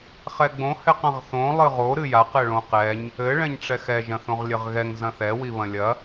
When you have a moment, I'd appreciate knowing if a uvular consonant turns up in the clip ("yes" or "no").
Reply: yes